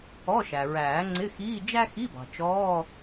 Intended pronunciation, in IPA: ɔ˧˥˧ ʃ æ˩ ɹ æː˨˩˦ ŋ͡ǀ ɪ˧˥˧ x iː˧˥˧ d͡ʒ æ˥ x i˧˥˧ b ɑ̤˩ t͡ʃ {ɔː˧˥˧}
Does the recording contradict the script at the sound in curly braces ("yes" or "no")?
no